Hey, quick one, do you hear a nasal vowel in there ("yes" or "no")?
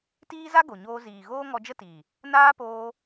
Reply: no